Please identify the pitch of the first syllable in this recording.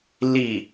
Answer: low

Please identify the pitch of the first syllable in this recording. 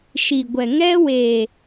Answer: low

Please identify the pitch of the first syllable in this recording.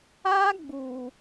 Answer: high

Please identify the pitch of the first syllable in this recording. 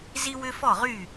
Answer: high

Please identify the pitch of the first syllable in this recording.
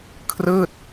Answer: falling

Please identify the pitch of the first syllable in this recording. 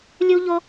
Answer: high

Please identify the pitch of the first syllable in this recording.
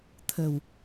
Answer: low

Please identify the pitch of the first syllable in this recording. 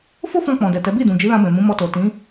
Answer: high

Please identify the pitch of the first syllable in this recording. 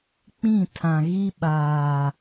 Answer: falling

